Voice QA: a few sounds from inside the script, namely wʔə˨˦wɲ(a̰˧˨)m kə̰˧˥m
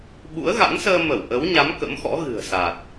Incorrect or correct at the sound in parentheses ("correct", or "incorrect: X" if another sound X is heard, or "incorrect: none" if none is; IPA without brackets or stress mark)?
incorrect: a˨˦